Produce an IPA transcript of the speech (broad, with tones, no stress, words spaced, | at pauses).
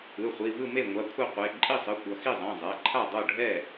ɯ˩˧˩χʷi˩˧˩ vɯ˥˩me˥˩ ŋʷa˩˧˩ kʷʰe˥˩qʷe˩˧˩ ǃʼi˥˩sˤɯ˩˧˩ kʷʌ˩˧˩xi˥˩zˤɛ̃˩˧˩ zˤɛ˩˧˩ǃʰa˥˩ dˤo˥˩ɖʱɛ˥˩